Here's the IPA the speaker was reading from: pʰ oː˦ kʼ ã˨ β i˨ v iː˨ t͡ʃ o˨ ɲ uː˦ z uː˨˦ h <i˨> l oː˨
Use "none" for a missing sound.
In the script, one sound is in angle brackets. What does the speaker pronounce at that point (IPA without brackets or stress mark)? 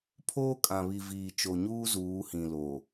ĩ˨